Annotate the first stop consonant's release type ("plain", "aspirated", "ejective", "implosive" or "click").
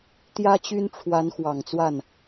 plain